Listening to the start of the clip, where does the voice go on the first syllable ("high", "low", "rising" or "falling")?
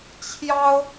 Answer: high